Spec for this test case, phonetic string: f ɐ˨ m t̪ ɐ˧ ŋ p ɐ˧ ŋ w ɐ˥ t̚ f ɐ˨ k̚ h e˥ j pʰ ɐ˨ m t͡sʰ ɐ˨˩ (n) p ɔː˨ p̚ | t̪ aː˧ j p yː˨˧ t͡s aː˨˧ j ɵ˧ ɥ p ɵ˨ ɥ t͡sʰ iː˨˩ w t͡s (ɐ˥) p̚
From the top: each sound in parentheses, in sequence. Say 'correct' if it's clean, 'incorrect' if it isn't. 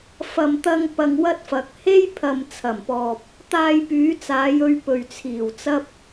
incorrect: m, correct

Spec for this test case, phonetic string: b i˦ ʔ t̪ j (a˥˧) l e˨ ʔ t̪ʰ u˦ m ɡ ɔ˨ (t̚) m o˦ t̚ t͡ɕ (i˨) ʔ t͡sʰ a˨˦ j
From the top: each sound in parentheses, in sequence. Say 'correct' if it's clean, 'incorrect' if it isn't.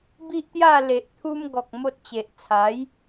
correct, incorrect: k̚, incorrect: e˨

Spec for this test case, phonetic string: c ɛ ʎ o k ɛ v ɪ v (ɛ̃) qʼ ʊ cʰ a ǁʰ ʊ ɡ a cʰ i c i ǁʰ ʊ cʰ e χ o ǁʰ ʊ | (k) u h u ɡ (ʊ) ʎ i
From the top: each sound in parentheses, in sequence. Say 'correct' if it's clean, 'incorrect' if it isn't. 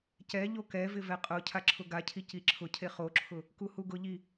incorrect: ɛ, correct, correct

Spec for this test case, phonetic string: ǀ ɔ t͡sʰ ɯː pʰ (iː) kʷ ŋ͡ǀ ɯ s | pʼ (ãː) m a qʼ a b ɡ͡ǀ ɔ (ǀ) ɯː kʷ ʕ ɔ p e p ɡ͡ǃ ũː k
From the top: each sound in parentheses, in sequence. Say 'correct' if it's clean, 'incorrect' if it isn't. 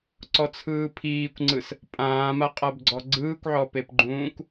correct, correct, incorrect: ɡ͡ǀ

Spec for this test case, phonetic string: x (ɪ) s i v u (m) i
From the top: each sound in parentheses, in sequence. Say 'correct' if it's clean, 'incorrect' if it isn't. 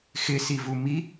correct, correct

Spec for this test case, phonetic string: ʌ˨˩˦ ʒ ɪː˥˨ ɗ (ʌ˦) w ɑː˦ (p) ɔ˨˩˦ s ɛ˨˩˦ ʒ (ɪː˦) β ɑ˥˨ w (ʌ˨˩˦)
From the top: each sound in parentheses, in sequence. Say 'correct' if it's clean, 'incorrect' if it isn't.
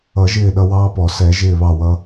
correct, correct, incorrect: ɪː˥˨, incorrect: ʌ˦

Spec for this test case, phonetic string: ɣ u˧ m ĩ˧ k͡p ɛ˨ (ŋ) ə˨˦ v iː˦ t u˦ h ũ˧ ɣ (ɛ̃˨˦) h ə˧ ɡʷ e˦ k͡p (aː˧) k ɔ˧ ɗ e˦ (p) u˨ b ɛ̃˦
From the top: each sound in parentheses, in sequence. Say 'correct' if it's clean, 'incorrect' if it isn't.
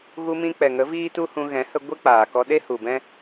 correct, correct, incorrect: aː˨, incorrect: h

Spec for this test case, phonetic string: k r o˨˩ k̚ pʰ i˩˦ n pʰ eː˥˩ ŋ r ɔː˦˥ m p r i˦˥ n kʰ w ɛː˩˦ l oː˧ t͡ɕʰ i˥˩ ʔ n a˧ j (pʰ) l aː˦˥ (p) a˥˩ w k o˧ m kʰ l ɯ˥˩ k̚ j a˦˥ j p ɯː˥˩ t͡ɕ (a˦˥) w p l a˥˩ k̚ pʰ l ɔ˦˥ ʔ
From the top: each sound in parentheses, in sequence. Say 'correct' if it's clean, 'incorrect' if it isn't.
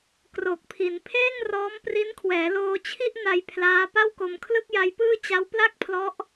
correct, correct, correct

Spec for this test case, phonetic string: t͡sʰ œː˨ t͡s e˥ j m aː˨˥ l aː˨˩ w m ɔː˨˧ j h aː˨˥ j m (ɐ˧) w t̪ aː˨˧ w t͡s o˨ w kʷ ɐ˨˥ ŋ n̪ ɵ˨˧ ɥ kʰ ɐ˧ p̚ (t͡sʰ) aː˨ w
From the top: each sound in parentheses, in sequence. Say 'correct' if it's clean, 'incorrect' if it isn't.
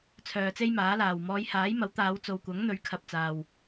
incorrect: ɐ˨˥, incorrect: t͡s

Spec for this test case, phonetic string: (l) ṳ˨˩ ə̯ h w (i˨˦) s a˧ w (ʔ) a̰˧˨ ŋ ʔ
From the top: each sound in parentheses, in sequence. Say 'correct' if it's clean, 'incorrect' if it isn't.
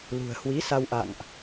correct, correct, correct

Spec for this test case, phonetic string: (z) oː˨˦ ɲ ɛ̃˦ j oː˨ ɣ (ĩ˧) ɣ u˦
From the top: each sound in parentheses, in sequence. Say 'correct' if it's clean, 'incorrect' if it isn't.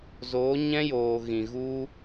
correct, incorrect: ĩ˨

